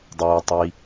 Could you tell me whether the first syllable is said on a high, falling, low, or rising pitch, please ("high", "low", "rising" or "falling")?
low